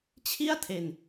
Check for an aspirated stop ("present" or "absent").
present